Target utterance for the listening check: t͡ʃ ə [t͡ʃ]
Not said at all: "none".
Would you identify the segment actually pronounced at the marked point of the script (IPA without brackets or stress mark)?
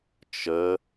none